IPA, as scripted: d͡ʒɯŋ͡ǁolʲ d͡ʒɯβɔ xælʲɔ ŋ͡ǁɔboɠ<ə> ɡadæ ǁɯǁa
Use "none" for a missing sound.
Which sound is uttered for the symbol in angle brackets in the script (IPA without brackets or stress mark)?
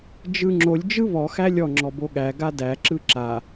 æ